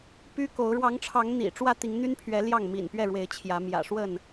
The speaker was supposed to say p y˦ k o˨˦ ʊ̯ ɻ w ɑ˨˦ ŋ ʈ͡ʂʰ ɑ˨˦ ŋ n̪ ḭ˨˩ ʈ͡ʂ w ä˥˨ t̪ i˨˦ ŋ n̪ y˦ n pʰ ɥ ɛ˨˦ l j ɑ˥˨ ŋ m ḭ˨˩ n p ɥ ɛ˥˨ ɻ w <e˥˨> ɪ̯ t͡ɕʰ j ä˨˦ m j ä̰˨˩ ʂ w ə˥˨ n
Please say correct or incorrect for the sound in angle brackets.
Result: incorrect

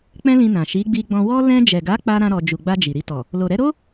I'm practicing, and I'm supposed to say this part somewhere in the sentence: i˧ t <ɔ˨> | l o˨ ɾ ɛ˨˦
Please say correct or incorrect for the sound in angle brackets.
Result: correct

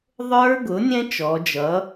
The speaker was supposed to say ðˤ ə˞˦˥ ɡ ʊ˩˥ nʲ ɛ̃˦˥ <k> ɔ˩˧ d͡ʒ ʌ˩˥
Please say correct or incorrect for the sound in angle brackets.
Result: incorrect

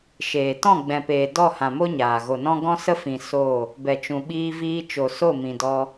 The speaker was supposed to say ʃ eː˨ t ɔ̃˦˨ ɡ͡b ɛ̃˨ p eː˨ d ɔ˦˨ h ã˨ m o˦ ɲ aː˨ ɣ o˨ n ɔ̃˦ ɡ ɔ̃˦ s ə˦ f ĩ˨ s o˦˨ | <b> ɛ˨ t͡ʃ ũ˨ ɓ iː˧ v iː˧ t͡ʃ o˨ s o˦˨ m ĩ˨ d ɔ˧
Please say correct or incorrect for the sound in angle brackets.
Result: correct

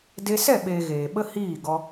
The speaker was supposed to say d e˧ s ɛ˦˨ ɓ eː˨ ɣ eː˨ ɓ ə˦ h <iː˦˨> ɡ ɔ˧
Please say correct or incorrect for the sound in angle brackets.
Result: correct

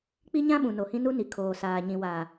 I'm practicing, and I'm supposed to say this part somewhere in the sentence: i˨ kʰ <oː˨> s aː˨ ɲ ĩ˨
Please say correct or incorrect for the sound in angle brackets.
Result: correct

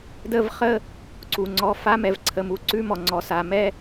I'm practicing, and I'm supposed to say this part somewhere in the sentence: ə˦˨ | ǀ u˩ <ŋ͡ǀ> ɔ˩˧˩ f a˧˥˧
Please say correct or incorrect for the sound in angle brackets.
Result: correct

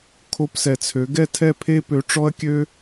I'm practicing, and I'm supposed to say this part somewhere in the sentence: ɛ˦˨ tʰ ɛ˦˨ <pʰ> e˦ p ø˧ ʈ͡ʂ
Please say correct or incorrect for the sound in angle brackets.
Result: correct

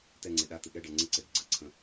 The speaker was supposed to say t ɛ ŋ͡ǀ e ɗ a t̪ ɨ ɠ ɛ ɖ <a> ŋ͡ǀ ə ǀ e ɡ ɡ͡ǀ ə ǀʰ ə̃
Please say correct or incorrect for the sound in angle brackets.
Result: incorrect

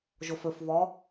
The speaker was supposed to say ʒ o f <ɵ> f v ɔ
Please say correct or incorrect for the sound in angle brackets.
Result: correct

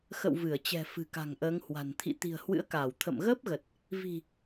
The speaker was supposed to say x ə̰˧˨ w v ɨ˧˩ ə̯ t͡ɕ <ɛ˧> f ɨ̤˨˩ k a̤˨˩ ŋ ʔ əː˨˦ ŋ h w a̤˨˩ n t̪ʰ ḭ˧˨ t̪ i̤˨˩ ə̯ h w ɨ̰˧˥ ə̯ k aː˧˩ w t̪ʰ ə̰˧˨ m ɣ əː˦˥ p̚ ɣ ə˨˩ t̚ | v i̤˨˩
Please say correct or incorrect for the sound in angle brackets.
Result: incorrect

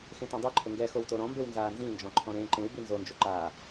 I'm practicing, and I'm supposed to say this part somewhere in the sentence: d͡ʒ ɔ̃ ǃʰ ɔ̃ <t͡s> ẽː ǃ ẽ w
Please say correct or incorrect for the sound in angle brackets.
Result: incorrect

